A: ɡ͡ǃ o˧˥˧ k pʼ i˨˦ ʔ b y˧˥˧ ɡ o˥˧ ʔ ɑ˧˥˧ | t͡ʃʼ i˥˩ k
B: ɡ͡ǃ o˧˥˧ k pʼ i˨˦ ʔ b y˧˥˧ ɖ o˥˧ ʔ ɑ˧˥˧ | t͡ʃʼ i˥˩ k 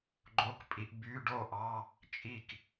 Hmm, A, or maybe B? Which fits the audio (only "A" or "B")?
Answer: B